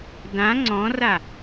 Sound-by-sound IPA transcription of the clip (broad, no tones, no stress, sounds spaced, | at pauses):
d ã ŋ͡ǀ ɔ̃ r a